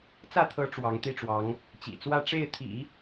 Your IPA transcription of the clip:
t͡s ä˥˩ t̪ʰ ɤ˧˥ ʈ͡ʂ w ɑ˧˥ ŋ t̪ i˥˩ ʈ͡ʂ w ɑ˧˥ ŋ | t͡ɕ ḭ˨˩ t͡s w ä˥˧ ʈ͡ʂ e˥˩ ɪ̯ t̪ʰ ḭ˨˩˦

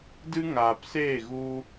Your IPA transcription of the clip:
d ɨ˦ ŋ aː˨ p s eː˦˨ ɣ u˧

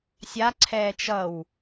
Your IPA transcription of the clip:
sʲ a ǀʰ ɛː t͡ʃ ʌ w

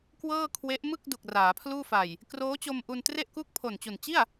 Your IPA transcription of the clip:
k w ɤː˥˩ kʰ w e˦˥ ʔ m ɯ˥˩ k̚ d u˨˩ k̚ r aː˩˦ pʰ l uː˥˩ f a˨˩ j | k r oː˦˥ t͡ɕ o˧ m ʔ u˧ n t r e˥˩ ʔ k u˥˩ k̚ pʰ o˨˩ n t͡ɕ u˨˩ n t͡ɕ i˥˩ a̯

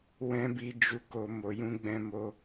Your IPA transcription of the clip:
w ɛ̃˦ b i˧ d͡ʒ u˧ k o˧ m o˨ j ũ˧ ɡ͡b ɛ̃˧ m o˧

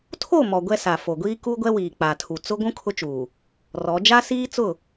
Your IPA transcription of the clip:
tʰ o˦˨ m ɔ˨ ɡʷ ɛ˦ s a˨ f o˨ ɡʷ iː˦ k u˦ ɡʷ ɛ˦ w iː˨ k͡p a˨ tʰ u˨ t͡s ʊ˦ ɡʷ ũ˦ kʰ ʊ˦ t͡ʃ uː˨ | r ɔ˨˦ d͡ʒ a˦ s iː˦ t͡s ʊ˦˨

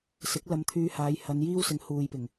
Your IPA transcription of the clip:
s ɪ˨˥ k̚ l ɐ˧ m t̪ʰ yː˧ h aː˨˧ j h ɐ˨˧ n j iː˥ w s ɪ˨˧ ŋ h uː˨ j p ɪ˨˩ ŋ

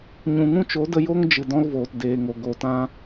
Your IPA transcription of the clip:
ɲ ũ˨ ŋ ũ˦ t͡ʃ o˨˦ d ə˧ j o˦ ŋ d͡ʒ ɨ˨ d ɔ̃˦ l v oː˨ t d eː˨ ŋ o˨ ɡ o˨ t ã˦

